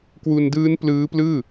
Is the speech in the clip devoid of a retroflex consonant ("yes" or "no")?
yes